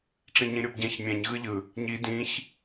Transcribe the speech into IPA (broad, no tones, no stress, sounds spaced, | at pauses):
ʈ͡ʂ ĩ ɲ ĩ ɾʲ o b ɟ ɛ̃ ç mʲ ɛ̃ ɲ ɣ ɯ ʎ ɯ | ɲ i d ĩ ç